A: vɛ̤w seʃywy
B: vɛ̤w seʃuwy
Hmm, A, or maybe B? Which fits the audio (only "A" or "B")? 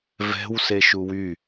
B